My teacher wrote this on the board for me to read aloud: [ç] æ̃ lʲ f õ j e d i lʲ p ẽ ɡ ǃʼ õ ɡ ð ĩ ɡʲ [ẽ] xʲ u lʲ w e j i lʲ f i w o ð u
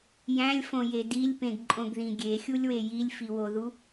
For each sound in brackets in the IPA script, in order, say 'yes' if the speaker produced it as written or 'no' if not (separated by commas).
no, no